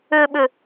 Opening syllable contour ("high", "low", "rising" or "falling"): low